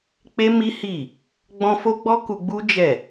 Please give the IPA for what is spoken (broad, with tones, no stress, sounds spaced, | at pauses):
k͡p e˦ m i˦ h i˦˨ | ɡ͡b ɔ̃˧ f o˦ ɡ͡b ɔ˦ k u˧ ɡ͡b u˦ d͡ʒ ɛ˦˨